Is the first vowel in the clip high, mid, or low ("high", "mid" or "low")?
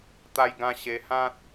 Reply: low